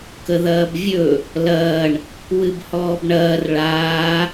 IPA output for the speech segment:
k ə ð ɐː b vʲ ɵ | l ɐː ɳ | w ɨ b h ɔː b ɳ ɐː r ɭ aː

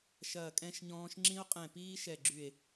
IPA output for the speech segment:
ʃ ɐː˧˩ kʼ ɛ̃˦˥ ʃ ɲ ɔ̃ː˦˥ ʃ ŋ͡ǁ ĩ˦˥ o̯ qʼ ɛ̃˧˩ p iː˦˥ ʃ ɛ˧˩ ɡ͡ǁ y˧˩ e̯

